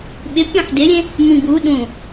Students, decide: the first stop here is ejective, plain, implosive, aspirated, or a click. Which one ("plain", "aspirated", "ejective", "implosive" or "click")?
implosive